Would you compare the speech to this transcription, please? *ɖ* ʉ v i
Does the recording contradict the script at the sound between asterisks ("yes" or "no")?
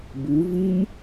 yes